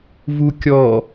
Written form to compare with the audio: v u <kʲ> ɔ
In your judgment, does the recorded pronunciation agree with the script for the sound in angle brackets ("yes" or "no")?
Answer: yes